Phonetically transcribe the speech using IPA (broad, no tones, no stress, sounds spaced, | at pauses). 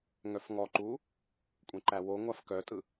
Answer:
ŋ œ f ŋ ɔ ǃ uː | kʷʼ ɛ̃ ǃ æ w o ŋʷ a f k œ tʼ ɯ